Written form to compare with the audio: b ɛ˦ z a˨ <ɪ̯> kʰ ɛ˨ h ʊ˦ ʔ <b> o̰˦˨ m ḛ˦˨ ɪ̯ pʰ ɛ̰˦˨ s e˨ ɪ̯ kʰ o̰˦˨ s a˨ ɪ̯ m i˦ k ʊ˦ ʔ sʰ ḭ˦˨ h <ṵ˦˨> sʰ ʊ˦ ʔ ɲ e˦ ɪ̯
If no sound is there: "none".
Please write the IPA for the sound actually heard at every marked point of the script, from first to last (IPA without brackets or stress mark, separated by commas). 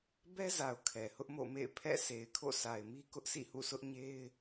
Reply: ʊ̯, m, ṵ˦˨